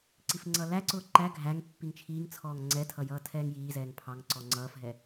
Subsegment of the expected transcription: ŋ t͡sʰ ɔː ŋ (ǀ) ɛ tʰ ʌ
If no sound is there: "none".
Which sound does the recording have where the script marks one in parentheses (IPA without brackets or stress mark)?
ŋ͡ǀ